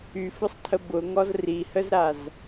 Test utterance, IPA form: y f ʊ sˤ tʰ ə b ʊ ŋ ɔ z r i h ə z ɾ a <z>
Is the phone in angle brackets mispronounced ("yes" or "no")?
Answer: no